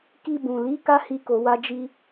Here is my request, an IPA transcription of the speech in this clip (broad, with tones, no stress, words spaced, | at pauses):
ki˧bũ˨li˨˦ ka˦hi˧ko˨wa˧ d͡ʒi˦